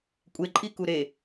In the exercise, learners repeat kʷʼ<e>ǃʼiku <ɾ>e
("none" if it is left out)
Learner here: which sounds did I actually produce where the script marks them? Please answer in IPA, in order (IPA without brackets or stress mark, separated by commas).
e, ɾ